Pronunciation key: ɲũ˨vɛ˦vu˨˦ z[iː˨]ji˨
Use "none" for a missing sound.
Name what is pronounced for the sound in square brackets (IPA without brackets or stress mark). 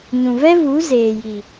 eː˨